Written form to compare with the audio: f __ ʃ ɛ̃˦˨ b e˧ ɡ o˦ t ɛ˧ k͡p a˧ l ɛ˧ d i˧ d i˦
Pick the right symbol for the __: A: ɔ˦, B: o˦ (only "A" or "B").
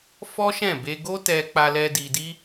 A